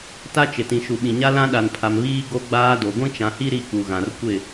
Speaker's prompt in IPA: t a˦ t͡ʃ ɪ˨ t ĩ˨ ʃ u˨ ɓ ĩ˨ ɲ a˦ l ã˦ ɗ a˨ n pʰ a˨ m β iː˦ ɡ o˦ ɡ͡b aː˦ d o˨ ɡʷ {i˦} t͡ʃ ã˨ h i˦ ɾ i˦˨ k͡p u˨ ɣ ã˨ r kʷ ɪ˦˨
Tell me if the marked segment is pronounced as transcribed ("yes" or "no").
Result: no